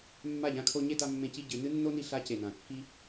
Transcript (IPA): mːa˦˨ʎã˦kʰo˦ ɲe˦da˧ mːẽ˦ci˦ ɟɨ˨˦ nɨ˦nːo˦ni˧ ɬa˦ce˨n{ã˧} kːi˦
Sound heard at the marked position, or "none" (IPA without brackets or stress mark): ã˨